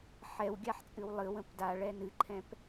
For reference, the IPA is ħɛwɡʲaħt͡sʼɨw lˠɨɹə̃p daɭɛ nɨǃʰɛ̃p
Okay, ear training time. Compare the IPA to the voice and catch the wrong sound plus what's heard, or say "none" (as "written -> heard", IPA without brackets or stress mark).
ɹ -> w